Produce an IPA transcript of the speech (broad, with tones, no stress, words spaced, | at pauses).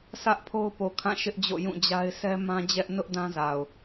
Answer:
sʰä˦ʔpʰo˦ʊ̯po˨kʰã˦˨ ʃɪ˦ʔd͡ʑo̰˦˨ jũ˦˨d͡ʑa˦ɪ̯ sɛ˦mã˦d͡ʑɛ˦ʔ nʊ˦ʔ dã˦za˨ʊ̯